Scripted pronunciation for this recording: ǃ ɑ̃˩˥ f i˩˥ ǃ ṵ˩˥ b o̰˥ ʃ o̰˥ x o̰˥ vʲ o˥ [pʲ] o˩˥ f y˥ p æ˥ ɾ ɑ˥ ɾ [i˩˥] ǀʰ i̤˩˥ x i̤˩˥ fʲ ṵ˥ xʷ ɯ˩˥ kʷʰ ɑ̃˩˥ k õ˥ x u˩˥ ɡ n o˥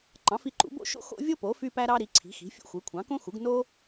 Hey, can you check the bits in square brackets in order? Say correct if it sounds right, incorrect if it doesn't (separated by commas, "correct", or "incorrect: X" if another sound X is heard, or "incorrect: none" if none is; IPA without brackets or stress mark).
incorrect: p, correct